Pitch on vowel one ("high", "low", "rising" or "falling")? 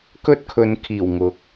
high